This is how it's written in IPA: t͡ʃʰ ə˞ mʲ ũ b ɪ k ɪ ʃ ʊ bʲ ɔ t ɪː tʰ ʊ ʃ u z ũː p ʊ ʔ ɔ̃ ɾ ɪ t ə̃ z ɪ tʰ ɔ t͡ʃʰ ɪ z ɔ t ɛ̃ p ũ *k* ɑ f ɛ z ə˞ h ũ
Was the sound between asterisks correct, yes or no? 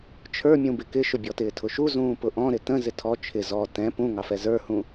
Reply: no